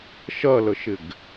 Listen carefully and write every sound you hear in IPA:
ʃ ɐ l ə ʃ ɪ ɡ

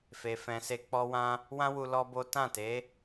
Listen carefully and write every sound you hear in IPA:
f e˨ f ɛ̃˨ s e˧ k͡p ɔ˧ w ã˧ | w ã˦ w u˧ l ɔ˦ b o˦ t ã˦˨ t e˨˦

